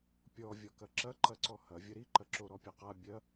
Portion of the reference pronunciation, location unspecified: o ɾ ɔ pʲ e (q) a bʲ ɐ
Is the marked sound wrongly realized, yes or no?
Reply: no